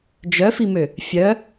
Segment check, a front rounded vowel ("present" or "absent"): present